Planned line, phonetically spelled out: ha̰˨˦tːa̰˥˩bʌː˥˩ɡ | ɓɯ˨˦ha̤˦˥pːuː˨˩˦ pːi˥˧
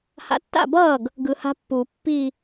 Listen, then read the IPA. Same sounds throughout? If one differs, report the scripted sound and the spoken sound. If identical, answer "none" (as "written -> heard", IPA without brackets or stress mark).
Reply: ɓ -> ɡ